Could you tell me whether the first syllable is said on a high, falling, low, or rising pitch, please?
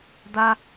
high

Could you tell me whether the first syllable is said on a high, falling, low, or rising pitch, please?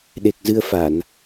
low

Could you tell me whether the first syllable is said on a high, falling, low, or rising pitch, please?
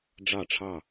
falling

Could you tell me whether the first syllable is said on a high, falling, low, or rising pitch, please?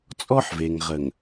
high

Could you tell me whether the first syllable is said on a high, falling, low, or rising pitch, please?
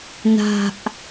low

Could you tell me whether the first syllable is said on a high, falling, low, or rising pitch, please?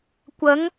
rising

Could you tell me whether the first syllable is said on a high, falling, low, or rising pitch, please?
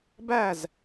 falling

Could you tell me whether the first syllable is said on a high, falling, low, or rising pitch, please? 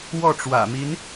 falling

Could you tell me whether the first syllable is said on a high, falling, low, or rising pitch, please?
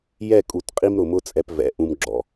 falling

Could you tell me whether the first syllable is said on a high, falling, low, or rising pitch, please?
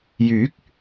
rising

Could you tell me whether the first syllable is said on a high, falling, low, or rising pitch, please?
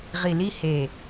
low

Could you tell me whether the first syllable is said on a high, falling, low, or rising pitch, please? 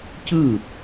falling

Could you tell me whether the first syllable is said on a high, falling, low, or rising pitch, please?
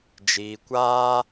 low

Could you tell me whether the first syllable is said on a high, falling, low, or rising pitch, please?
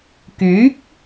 rising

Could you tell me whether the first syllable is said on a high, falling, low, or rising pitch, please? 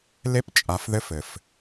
high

